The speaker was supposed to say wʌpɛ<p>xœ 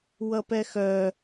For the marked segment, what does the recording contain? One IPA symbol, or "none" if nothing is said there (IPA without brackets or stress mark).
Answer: none